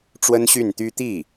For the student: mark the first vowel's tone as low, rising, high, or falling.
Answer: high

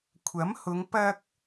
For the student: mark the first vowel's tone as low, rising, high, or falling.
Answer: rising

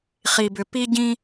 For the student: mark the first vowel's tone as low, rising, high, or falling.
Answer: low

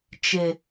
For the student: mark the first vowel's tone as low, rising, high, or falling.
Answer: low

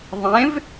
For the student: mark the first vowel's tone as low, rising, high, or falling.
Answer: rising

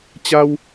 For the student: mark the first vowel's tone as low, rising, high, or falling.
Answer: high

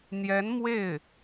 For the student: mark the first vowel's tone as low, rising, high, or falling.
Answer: rising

